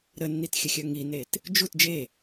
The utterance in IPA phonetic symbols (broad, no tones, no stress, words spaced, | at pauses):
ɾənːitxʲəxʲœ ŋinet | d͡ʒut d͡ʒe